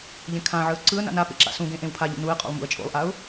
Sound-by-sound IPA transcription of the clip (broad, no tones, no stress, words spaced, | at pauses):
ʎẽkʰãʕɯə̯ ǀɯə̯na̰ na pḛǁa̰sũɡẽ ʔẽwpʰaʎṵ nuɪ̯qʼo̰lˠ mṵə̯t͡ʃʼo̰lˠʔaʊ̯